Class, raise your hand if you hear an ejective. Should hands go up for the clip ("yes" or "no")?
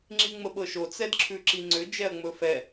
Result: no